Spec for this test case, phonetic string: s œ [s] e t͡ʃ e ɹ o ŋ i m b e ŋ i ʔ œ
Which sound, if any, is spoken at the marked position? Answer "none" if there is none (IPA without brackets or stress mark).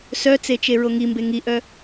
t͡s